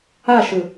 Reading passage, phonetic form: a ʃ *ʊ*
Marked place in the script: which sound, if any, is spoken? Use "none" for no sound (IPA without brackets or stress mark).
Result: ɯ